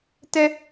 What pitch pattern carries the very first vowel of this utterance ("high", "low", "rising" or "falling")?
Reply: high